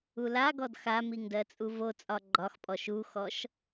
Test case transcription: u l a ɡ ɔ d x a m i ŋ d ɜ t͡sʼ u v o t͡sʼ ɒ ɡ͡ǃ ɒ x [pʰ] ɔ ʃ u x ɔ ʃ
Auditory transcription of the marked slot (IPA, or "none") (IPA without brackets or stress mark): pʼ